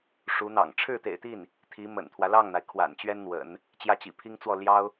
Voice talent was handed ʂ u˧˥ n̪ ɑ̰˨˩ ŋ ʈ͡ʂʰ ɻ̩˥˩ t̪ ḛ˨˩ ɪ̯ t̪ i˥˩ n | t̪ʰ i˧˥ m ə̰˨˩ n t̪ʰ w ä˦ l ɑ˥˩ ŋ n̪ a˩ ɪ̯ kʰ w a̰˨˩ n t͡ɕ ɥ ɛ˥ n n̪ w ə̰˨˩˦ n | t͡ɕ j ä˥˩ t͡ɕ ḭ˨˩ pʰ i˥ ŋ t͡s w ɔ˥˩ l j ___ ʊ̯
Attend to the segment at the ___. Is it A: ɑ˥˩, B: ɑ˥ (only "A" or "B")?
B